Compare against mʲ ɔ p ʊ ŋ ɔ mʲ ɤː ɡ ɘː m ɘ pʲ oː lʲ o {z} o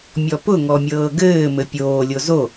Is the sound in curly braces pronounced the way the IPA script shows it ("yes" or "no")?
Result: yes